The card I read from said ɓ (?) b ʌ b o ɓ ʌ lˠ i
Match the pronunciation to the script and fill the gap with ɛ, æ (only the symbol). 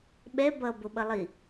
ɛ